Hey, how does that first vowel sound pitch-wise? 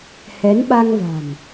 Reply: rising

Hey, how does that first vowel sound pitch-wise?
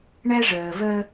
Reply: high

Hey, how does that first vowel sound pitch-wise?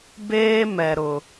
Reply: high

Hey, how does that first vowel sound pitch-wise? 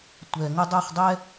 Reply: low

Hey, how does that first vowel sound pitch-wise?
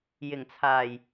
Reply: low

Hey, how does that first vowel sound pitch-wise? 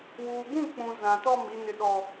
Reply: low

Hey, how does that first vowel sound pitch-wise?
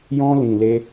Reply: high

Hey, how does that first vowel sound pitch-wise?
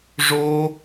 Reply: high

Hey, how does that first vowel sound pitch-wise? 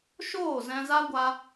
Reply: falling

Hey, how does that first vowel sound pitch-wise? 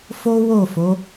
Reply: high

